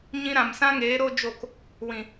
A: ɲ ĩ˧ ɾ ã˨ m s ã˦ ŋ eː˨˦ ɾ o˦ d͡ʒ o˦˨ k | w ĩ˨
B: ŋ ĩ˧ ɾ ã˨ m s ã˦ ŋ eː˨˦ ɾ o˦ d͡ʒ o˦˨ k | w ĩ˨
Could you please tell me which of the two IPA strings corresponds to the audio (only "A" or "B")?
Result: A